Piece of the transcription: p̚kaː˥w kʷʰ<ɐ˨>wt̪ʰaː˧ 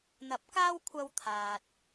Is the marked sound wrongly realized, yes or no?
yes